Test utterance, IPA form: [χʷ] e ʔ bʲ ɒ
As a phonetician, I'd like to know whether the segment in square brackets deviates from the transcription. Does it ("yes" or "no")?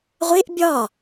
yes